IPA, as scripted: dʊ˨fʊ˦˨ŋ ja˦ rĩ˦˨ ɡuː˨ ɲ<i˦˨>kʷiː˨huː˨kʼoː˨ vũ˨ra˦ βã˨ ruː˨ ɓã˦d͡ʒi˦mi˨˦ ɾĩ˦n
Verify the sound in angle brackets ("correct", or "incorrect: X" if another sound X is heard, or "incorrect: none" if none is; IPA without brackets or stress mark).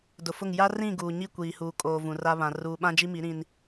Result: correct